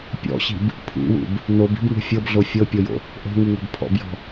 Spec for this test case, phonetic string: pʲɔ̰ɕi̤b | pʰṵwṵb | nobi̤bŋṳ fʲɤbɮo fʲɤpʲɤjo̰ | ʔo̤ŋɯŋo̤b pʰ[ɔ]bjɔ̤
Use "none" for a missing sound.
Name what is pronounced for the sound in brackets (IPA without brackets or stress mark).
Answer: ɔ̰